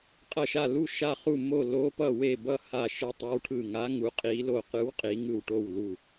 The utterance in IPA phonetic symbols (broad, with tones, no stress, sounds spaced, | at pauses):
qʼ ʌ˧˩ ʃ a˧˩ l u˧˩ ʃ a˧˩ χ u˧˩ m o˧˩ l o˨˦ p ʌ˧˩ w e˧˩ b ʌ˧˩ h a˧˩ ʃ ɯ˨˦ tˤ ɯ˨˦ w ʈʰ ɯ˧˩ ŋ a˨˦ ŋ u˨˦ qʼ i˨˦ l o˧˩ q ɯ˨˦ w qʼ i˨˦ ŋ ɯ˧˩ w ʈ o˧˩ w l u˧˩